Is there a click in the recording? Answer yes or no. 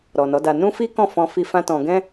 no